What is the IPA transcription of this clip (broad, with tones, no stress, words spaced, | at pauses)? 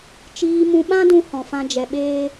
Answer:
t͡ʃiː˧mũ˧ɓã˦dũ˧ hɔ̃˧fã˦d͡ʒɛ˧ ɓeː˦